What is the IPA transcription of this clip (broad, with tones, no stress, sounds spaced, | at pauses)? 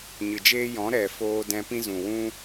ɲ ɨ˨ d͡ʒ eː˦ j ɔ̃˨˦ ɾ ɛ˨ f oː˧ d ɛ̃˧ p ĩ˦ z ũ˨ w ũ˦